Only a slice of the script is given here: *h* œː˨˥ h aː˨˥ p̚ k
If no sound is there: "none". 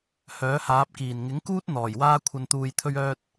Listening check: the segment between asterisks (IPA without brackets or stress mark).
h